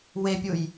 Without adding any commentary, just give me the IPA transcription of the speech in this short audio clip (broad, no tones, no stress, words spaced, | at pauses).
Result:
wepʲuj